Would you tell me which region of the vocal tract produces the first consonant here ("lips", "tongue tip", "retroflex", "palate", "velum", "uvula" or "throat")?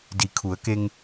tongue tip